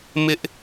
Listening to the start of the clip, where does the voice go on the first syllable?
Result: high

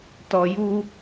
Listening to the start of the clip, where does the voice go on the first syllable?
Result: low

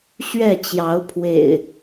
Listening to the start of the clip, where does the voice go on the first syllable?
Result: falling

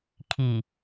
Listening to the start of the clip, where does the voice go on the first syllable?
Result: low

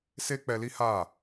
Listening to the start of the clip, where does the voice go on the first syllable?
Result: high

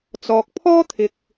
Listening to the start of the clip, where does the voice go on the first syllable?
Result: low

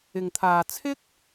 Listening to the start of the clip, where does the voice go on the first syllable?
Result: low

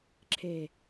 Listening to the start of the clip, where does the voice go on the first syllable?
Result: low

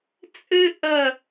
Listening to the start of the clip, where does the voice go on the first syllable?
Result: high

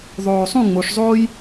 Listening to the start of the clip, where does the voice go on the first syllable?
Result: low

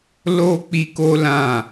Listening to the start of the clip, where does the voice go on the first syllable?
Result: high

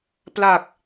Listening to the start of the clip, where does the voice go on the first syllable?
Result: low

